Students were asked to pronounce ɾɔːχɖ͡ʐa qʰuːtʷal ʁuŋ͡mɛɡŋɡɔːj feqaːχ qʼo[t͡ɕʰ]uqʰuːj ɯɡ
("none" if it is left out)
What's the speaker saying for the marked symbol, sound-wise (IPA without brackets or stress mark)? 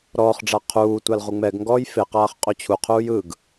t͡ɕʰ